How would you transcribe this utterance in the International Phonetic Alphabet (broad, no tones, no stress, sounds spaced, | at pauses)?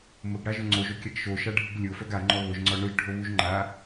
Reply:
m ʊ ɡ ɽ a ʒ ʊ ŋ͡ǀ o ʒ o kʲ a ɡ ʃ o ʃ a ɖʱ u ɡ lʲ ʊ f œ ɡ a ŋ͡ǃ ɔ β ʊ ʒ ŋ͡ǀ ɔ ɳ ʊ ʒ ɖʱ o β u ʒ ŋ͡ǃ a